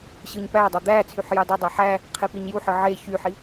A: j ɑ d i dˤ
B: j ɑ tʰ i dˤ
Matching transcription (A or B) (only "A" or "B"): A